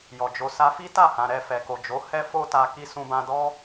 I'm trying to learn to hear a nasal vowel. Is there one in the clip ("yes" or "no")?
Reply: yes